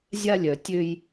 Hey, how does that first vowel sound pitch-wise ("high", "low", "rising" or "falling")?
high